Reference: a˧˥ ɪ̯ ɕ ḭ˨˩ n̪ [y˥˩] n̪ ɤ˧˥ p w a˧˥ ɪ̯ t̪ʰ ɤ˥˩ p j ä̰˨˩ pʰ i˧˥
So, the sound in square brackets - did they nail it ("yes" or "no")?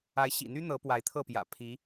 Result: no